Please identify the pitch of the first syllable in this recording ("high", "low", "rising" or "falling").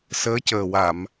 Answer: rising